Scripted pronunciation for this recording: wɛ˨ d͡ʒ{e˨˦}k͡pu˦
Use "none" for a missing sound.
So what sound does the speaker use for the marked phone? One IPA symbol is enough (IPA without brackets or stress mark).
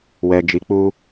i˨˦